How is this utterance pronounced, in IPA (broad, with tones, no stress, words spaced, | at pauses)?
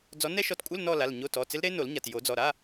d͡zɔ˨˦nɛ˦˥ʃɔ˨˦tkʷʼɪ˧˥˧l nɔ˥˧la˩˧˩lɲo˧˥˧ tɔ˩˧˩t͡sɪ˦˥l ɾe˦˥no˨˩˦lɲa˩˧˩t jo˨˩˦d͡zɔ˩˧˩ɾa˧˥˧